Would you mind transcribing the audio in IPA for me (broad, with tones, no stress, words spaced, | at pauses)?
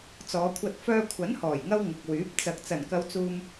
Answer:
t͡sɔː˨˧kʷʰɐ˧t̚ fœː˧kʷʰɐ˨˥nhɔː˨˩jŋɐ˧w ŋʊ˨k̚wyː˨˥p̚ t͡sɐ˨k̚ t͡sɐ˨˩nkɐ˨˧wt͡suː˨m